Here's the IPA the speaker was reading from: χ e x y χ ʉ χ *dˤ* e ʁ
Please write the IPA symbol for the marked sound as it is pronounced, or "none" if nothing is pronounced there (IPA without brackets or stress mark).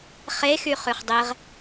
dˤ